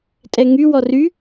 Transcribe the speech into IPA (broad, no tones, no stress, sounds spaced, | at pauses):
tʼ ɛ ŋ y w ɔ r y